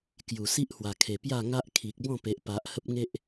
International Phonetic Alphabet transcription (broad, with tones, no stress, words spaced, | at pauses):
kju˨˩si˦ʔhwa˨˩kʰe˨˩ pja˥˧ŋa˦ʔ kʰi˨k̚bɔ̃˥˧ pe˨ʔ pa˨ʔ hə˦p̚ŋe˦ʔ